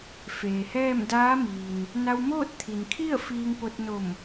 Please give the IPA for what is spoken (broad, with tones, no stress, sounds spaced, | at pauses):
f eː˩ h ɛː˥˨ m d aː˧˥ m iː˩ n | n a˧ w m oː˥˨ t̚ t̪ʰ i˩ n kʰ i˥˨ ə̯ f iː˧ ŋ p o˧ t̚ n o˧˩ m